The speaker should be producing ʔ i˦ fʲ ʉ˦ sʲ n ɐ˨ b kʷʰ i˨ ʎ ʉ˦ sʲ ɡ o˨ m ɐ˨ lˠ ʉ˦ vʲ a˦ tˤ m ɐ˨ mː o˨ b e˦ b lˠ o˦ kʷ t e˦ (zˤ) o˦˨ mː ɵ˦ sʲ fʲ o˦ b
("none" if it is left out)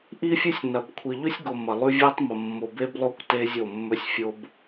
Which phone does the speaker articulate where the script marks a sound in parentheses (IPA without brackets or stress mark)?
zʲ